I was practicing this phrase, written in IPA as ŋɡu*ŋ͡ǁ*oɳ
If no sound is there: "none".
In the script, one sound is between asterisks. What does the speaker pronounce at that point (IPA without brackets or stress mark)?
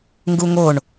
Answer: ŋ